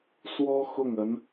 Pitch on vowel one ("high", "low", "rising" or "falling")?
high